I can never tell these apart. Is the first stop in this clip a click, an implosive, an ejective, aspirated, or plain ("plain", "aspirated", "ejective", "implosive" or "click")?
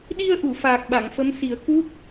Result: implosive